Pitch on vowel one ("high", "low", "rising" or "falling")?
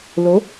rising